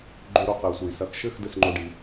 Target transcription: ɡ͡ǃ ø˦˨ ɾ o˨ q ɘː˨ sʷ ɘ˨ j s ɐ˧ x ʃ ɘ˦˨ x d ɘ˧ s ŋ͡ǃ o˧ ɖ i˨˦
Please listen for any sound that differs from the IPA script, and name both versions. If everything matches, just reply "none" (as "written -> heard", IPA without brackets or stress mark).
ø˦˨ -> ø˧